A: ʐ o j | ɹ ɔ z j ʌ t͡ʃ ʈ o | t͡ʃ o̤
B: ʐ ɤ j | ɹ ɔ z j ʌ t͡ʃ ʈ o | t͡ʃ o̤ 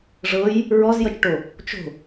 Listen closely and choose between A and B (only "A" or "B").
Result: B